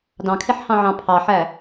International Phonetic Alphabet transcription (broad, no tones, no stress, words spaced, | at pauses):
dɑ̃kʰeħhɑ̃ʕɑ̃ pʰɑħæ